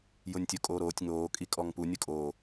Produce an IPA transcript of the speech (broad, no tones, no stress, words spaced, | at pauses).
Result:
jʊnʲtʲʊ kʼoːɾoːtʲ ŋoː kʼikʼɔŋpu nʲʊkʼoː